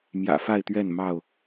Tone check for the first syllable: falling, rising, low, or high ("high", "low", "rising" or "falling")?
low